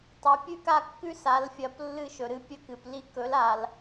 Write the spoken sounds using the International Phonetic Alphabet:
tˤɵ˩˧ pʲʉ˦ka˦˨kːʉ˦ sa˩˧lfʲɐ˩˧p lːɨ˦˨ʃɵ˩ɾɨ˦ pʲɵ˦kɨ˩pli˦ kɵ˩˥la˩l

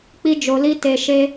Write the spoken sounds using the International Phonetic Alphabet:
k͡pi˦d͡ʒo˧li˦ te˧ʃe˦

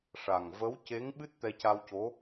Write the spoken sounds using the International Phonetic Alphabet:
ʂa˨˩ŋ və˧˥wce˧˥ŋɓɨ˦˥t̚ t̪ɛ˧ca˧wco˧˥

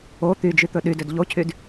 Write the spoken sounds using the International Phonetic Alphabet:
o t̪yd͡ʒyt̪ɵ ɗydød ʎocʰyd

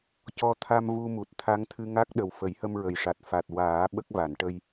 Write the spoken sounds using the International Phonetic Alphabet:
cɔ˧ t̪ʰa˧m vu˧mu˨˩t̚ t̪ʰa˧˥ŋt̪ʰɨ˧ŋa˦˥k̚ɗə˨˩w fə˨˩˦jhə˧mɹə˨˩jʂa˨˩t̚ fa˨˩t̚ waː˨˩˦ ɓə˦˥k̚va˨˩˨nʈə˧j

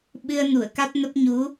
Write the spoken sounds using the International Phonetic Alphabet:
ɓɨ˧ə̯nu˧˩ə̯ ka˦˥t̚nə˦˥p̚ ɲu˨˦

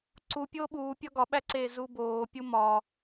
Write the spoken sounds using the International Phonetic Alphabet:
ǀu pʲoːɓuː pʲɒɡɒɓæǀeː zuboːpʲu mɒ

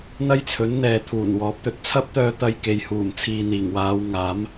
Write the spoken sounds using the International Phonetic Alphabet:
n̪ɐ˥jt͡sʰɵ˨˥n n̪ɛː˨t̪ʰuː˨˩nwɔː˨˥p̚ t̪ɵ˨t̚t͡sʰɐ˥p̚t̪œː˧t̪ɐ˧j ke˨jhuː˨˩mt͡sʰiː˨ n̪iː˨˩ŋwaː˨˧wŋaː˨˥m

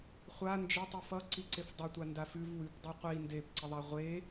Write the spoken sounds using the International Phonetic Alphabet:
χʷa nd͡ʒətˤu fʌǀi ǀefdˤʌtʷa ndafʉv wʉp dˤuqʷi ndepǀəðˤa ʁʷe

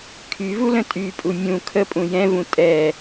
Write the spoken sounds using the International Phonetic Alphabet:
kʰyvulə̃ tʼypʼu mʲũ kʰəpʼũ jɛ̃vũ tʼɛ

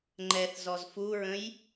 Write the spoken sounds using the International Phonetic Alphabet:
ŋ͡ǃɛθzɔz fuɹə̃j

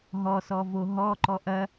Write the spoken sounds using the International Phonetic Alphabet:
ɦɔsɔvo ɦɔǃɔ ʔɐ

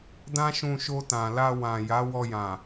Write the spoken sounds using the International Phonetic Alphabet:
dã˦ʃũ˧ʃo˧ tã˨la˧wã˨ ja˨˦wɔ˧jã˨

